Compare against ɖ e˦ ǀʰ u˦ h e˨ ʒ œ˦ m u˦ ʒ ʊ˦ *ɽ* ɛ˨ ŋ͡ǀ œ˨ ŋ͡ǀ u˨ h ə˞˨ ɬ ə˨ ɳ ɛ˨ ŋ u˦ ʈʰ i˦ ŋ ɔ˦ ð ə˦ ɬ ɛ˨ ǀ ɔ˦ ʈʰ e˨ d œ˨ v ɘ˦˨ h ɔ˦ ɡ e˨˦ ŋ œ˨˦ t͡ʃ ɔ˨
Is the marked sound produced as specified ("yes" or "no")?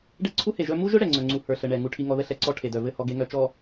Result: yes